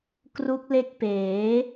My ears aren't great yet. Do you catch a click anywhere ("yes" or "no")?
no